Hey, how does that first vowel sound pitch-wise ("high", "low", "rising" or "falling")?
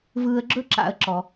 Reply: low